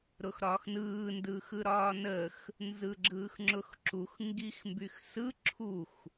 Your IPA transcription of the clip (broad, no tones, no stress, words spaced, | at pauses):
ɾʊxɾɒːxnɯː ndɯːxɯɾɒːnəːx | nzɯɡ͡ǁɯːxŋ͡ǁʊxǁux ŋɡixmbyxsɯ ǁʰux